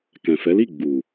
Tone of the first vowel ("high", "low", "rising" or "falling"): low